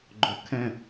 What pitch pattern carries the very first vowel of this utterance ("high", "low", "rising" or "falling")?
low